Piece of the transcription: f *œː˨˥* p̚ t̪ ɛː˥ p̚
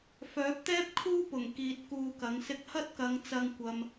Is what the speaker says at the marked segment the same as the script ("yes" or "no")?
yes